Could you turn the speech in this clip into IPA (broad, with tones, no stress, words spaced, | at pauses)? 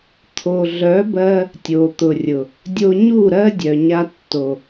t̪ʰo˨ɮœ˨˦bɜ˧ | tʲo˨t̪ʊ˨rʲʊ˨ | dʲo˧ɲu˦˨ɾɜ˦ dʲœ˨ɲa˧tːo˨